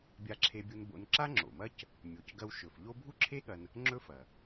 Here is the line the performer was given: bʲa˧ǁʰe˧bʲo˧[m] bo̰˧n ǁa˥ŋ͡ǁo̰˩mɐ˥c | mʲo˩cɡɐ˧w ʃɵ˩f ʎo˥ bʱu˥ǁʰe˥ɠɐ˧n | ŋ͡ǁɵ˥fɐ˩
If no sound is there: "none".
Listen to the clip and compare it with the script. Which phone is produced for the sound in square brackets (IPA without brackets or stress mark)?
n